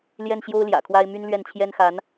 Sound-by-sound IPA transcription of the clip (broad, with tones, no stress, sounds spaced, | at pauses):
l j ɛ˥˩ n ɕ j o˥ ʊ̯ l j ä̰˨˩ kʰ w a˥ ɪ̯ m y˥ n l ɥ ɛ˥˩ n t͡ɕʰ j ɛ˥ n x a˧˥ n